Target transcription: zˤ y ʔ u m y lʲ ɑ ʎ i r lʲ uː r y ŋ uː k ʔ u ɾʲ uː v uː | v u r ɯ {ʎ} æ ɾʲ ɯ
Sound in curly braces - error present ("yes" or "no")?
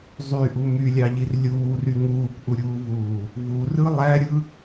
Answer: yes